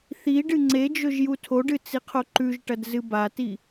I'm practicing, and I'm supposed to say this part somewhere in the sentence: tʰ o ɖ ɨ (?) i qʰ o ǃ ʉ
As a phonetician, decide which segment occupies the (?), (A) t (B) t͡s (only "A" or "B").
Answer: B